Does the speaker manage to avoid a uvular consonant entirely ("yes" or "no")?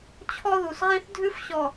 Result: no